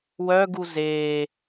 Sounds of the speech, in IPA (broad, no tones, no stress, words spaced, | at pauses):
wœɡu zeː